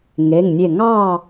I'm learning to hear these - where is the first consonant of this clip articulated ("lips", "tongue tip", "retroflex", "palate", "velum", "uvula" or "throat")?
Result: velum